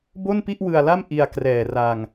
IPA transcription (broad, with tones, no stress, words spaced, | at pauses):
bo˥˩npi˥˩ʔwɯ˧a̯la˥˩m ʔi˧a̯ krɛː˨˩ra˧ŋ